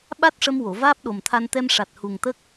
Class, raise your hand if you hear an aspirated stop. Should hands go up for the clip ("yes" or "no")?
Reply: yes